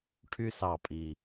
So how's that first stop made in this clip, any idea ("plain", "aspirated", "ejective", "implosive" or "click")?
aspirated